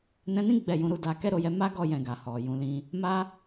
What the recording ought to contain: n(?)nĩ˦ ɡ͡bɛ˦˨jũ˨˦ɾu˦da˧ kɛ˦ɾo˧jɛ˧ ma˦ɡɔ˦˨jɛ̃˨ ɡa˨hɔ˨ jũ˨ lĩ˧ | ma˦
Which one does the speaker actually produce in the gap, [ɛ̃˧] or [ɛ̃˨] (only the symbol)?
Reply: ɛ̃˧